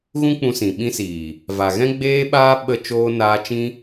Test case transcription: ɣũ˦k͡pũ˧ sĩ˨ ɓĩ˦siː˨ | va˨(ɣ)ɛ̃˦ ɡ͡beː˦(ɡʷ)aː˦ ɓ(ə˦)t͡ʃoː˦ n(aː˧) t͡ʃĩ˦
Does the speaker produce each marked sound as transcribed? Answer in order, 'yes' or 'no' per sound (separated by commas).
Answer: yes, no, yes, yes